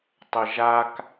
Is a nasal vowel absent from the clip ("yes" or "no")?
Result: yes